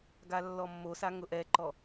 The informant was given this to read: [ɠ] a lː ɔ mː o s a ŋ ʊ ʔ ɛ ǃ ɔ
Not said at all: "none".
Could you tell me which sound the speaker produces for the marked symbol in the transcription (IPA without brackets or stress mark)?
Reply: ɡ